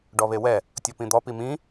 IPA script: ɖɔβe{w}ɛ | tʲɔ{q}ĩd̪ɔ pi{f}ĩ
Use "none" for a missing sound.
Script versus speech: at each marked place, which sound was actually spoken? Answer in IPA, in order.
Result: w, p, m

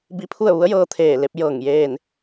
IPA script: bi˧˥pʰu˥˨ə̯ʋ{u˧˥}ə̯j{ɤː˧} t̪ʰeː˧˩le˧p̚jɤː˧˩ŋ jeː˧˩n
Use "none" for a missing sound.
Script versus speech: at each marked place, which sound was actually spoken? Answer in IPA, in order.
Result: u˧˥, ɤː˧

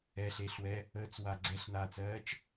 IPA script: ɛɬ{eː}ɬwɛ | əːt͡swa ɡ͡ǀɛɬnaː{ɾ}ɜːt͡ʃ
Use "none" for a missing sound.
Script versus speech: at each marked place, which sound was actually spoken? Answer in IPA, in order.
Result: eː, t͡s

